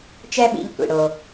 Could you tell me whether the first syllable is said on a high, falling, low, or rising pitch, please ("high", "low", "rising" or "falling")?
high